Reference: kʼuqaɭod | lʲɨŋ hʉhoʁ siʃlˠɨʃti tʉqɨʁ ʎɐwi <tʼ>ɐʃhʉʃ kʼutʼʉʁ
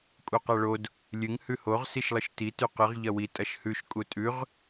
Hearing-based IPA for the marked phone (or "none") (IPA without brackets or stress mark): tʼ